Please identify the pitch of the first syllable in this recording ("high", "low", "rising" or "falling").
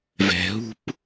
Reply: low